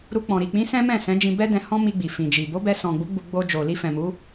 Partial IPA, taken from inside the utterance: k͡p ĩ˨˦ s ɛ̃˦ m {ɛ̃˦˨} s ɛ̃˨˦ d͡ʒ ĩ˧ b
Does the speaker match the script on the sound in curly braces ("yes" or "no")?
yes